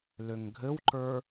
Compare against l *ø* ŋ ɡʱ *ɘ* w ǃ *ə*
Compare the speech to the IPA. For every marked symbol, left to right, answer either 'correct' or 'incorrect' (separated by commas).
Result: correct, correct, incorrect